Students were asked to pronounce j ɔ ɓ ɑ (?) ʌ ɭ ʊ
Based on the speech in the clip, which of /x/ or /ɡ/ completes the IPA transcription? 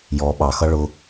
x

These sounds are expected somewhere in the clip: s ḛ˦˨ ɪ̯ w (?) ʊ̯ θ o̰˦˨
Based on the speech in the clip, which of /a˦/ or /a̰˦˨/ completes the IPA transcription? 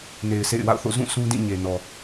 a̰˦˨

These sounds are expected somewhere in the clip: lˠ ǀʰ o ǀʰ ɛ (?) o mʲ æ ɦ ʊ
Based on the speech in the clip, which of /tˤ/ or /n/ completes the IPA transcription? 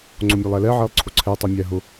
tˤ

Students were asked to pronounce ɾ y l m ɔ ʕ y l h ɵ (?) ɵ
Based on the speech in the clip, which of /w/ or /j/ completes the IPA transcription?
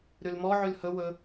w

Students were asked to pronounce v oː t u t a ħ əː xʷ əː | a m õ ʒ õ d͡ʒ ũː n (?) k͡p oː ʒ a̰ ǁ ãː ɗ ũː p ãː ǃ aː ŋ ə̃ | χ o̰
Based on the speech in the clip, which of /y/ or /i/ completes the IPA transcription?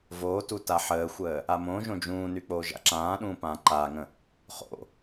y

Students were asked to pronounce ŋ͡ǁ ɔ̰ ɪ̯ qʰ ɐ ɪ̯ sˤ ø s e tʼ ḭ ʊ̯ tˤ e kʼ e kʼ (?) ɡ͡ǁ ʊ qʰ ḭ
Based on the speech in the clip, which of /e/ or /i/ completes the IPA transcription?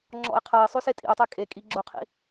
i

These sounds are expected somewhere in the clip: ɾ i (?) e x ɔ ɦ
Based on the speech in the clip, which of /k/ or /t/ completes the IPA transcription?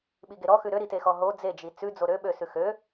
t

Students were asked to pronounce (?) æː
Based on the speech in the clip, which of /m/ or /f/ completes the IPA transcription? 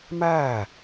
m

